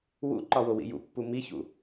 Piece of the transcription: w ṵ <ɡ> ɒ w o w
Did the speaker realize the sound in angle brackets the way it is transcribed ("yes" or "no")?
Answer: no